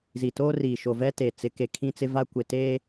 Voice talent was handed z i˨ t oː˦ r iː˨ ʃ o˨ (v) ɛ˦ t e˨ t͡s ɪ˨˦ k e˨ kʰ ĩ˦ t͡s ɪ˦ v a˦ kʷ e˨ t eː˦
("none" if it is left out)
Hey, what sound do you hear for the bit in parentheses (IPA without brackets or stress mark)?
v